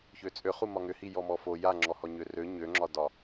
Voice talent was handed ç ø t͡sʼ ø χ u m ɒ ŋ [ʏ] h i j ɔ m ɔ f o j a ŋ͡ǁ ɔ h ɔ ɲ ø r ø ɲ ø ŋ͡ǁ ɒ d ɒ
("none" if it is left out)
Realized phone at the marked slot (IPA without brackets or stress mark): ʏ